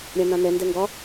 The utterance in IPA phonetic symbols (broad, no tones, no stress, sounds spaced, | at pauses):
ɾʲ ã n ã n ɛ n d ɛ ŋ ɡ ɒ